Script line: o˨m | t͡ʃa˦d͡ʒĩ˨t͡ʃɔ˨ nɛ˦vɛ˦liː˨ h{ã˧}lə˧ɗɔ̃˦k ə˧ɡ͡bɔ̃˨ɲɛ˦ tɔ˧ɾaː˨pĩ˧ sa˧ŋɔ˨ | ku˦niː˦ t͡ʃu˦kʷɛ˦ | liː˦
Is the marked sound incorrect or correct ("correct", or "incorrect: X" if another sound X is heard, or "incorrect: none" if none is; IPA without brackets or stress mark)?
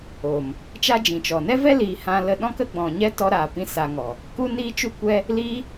correct